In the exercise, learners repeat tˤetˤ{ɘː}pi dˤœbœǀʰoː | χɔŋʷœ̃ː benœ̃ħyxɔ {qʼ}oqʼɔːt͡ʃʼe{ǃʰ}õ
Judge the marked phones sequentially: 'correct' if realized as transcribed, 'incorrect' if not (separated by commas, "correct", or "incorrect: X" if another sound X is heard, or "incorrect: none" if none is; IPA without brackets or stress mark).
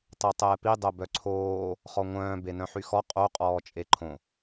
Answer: incorrect: ɛː, correct, correct